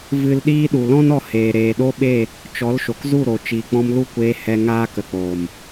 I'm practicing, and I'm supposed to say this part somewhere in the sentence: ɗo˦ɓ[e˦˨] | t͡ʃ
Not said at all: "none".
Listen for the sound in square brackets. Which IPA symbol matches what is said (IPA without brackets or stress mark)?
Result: e˦˨